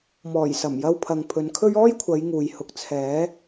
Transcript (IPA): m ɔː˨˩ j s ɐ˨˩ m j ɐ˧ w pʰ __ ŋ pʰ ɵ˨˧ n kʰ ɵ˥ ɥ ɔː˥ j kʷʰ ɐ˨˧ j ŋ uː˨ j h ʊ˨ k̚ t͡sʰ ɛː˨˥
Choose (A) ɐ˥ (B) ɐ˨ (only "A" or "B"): B